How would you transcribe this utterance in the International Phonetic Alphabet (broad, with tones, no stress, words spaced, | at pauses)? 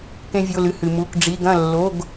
kẽ˧vʲo˩˧˩lɨ˩˧˩ hɨ˩ mu˩˧˩k ɖ͡ʐi˩˧˩ɡɐ̃˥˩ lːo˩˧˩ɡ